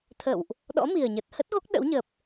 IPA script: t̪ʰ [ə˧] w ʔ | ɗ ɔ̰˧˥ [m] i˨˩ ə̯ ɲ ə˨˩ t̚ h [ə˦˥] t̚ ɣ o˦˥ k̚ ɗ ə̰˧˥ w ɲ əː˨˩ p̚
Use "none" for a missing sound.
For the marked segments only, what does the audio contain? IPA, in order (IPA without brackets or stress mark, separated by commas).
ə̰˧˨, m, ə˦˥